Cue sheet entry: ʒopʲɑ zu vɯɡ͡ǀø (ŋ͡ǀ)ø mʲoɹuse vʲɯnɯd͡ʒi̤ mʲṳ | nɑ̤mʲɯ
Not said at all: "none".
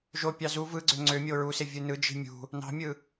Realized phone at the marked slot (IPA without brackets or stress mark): ŋ͡ǀ